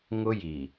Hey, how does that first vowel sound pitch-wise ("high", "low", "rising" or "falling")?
high